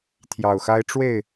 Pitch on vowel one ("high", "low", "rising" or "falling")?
low